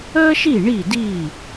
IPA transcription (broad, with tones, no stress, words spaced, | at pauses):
əː˥ʃi˥˩ ɳi˥˩di˥˩